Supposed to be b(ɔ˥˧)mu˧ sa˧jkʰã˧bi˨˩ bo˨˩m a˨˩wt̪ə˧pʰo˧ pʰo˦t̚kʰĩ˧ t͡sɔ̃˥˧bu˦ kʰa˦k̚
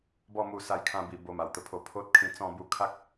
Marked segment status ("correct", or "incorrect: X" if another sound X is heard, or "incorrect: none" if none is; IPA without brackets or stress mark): correct